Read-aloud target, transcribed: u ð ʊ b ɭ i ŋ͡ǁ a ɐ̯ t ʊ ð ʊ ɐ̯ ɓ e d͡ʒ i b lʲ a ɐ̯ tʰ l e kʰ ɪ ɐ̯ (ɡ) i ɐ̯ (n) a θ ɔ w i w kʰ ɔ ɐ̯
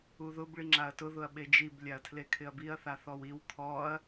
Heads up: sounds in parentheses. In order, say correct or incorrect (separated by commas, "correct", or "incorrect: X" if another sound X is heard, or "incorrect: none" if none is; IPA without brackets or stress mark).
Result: incorrect: b, incorrect: θ